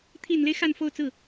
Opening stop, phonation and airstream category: aspirated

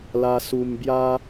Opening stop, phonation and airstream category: plain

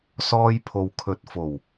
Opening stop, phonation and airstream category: aspirated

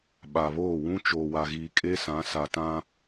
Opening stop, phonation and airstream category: implosive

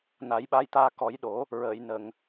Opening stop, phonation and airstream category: implosive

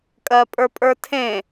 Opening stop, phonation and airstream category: ejective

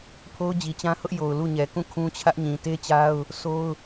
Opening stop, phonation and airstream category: aspirated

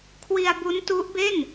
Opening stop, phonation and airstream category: aspirated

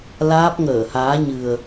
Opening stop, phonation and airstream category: plain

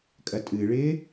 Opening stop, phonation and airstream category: ejective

